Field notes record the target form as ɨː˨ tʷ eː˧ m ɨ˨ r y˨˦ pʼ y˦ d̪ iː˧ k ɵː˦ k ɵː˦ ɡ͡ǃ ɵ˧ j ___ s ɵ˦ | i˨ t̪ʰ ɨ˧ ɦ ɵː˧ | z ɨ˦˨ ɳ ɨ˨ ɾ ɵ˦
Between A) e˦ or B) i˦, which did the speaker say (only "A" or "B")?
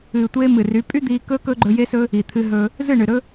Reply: A